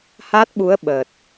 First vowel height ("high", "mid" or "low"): low